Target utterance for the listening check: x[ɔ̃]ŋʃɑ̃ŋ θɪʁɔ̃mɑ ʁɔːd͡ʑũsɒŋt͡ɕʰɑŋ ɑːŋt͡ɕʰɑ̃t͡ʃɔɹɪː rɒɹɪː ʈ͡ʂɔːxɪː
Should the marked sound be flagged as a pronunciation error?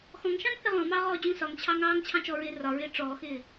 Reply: no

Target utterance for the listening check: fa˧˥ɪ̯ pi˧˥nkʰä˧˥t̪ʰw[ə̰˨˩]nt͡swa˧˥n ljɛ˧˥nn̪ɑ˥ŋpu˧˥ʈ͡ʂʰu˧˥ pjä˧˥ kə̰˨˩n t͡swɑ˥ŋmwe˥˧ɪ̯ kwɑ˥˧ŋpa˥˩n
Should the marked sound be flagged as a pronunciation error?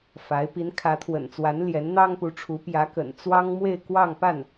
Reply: no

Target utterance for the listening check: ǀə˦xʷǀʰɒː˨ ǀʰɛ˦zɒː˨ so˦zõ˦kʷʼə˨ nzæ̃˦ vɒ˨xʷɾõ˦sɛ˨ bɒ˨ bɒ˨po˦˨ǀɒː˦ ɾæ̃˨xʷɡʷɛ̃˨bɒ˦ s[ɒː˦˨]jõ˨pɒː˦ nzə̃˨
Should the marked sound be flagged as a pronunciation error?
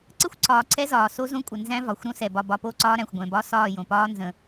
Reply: no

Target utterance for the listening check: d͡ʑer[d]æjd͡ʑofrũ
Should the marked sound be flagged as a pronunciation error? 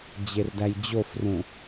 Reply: no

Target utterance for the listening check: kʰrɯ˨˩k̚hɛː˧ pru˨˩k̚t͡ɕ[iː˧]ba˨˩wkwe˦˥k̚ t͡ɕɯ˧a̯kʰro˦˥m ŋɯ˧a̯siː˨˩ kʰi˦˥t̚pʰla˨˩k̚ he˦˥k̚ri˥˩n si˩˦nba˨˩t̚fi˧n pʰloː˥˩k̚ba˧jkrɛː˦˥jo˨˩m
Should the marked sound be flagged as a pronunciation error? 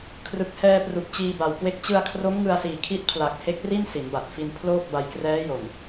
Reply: no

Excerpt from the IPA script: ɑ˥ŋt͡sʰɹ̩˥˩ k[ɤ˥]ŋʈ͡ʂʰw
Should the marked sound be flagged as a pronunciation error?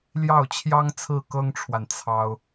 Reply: no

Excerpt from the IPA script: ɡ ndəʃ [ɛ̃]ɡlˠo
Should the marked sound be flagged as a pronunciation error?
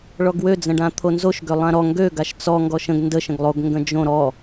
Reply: yes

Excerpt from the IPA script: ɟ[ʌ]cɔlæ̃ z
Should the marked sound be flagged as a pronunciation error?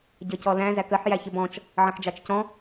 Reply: no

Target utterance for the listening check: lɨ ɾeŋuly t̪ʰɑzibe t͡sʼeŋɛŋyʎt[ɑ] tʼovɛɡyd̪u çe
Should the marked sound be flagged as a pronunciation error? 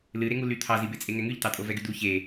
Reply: no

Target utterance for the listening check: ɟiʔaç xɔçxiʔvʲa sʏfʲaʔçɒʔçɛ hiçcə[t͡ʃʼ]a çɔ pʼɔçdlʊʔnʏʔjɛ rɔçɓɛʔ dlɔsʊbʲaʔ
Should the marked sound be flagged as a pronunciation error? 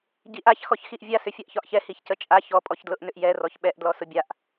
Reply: no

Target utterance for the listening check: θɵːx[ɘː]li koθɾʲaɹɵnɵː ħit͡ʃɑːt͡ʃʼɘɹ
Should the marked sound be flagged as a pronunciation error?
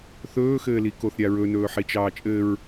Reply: no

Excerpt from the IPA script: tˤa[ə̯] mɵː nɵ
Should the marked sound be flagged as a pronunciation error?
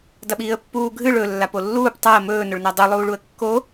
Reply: no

